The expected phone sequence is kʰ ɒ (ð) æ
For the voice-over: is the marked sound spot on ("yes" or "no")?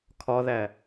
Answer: yes